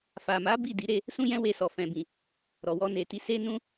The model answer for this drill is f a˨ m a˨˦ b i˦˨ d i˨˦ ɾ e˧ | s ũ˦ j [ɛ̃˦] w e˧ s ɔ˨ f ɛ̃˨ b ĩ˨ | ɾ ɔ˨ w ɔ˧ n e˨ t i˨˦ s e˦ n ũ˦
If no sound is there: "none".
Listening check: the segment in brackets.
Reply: ɛ̃˦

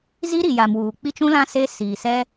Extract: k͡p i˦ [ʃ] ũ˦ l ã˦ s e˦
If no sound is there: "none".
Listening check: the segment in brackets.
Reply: t͡ʃ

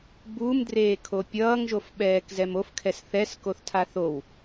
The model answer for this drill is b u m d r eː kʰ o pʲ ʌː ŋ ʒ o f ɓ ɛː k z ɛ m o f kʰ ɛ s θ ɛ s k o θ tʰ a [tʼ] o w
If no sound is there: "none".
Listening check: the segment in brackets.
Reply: θ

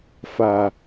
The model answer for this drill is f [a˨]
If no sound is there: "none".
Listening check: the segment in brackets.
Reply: a˨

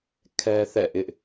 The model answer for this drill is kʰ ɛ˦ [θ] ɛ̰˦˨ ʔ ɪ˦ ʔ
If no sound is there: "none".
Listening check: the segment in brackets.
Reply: θ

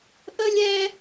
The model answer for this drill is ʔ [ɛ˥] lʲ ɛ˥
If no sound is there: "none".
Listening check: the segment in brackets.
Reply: ə˥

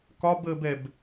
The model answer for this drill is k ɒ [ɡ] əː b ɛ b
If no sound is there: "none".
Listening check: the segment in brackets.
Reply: b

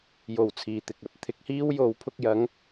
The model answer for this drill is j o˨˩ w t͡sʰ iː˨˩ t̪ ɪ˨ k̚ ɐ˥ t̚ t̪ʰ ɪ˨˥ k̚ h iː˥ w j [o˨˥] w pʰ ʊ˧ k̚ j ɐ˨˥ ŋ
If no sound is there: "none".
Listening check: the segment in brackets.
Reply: o˨˥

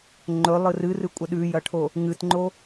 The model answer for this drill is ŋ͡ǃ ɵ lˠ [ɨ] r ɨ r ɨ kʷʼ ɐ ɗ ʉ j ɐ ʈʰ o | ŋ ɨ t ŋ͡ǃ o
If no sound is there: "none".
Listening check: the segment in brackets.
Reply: ɨ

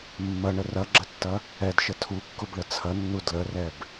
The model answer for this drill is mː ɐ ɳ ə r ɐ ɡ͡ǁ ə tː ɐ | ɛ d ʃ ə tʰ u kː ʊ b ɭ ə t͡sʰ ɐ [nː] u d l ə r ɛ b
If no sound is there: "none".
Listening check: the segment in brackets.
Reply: nː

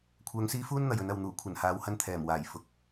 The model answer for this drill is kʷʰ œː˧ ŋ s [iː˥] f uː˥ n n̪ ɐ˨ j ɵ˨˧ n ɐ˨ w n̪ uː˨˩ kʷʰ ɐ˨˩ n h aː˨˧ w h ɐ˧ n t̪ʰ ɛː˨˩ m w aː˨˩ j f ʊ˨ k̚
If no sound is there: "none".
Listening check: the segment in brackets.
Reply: iː˥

